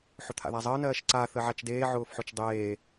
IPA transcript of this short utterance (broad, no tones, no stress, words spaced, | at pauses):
ħʊt̪ʰa̰ðazˤəː nɜːʃǀa θəʕat͡ʃdeː ʕʊːfħʊt͡ʃdˤeː